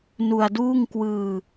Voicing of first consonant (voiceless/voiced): voiced